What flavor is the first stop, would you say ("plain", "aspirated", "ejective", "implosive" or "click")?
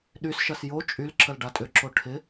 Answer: implosive